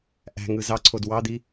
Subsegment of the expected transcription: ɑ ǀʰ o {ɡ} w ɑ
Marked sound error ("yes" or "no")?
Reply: yes